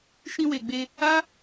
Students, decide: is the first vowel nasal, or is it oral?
nasal